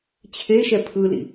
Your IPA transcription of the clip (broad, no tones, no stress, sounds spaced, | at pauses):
t͡ɕʰ e ʃ ɛ pʰ ɯ l ḭ